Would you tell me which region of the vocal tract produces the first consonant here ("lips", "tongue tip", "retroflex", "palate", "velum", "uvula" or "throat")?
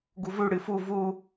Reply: velum